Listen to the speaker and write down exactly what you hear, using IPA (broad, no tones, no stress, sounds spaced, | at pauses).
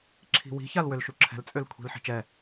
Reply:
ǁʰ i̤ w i̤ ç a l w ø l ʃ u ǁʰ ɛ̤ l t͡sʼ ø l kʷʰ i̤ l ħ i̤ t͡ʃ ɛ